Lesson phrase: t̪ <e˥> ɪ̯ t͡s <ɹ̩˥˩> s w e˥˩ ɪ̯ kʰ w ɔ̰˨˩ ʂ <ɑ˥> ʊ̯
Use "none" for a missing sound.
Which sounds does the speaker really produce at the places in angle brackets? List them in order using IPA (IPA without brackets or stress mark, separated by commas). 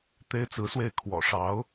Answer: e˥, ɹ̩˧˥, ɑ˧˥